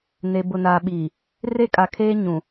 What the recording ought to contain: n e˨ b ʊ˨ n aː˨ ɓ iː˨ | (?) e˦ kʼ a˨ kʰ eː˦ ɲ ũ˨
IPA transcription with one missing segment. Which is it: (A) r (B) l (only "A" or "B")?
A